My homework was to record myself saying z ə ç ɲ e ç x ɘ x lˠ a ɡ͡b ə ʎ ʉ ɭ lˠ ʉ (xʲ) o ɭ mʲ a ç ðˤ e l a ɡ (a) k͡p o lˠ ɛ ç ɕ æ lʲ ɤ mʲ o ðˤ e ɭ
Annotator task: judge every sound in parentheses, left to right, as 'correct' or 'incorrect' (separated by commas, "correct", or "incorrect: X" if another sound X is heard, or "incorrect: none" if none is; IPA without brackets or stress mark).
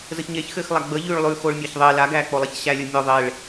incorrect: x, incorrect: æ